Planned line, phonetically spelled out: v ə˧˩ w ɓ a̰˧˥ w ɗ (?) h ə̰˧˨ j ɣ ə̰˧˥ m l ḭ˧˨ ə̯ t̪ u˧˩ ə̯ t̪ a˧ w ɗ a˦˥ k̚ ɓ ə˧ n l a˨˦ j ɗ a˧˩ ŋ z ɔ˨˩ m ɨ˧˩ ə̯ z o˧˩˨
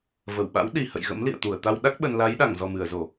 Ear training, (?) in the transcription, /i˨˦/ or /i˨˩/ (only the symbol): i˨˩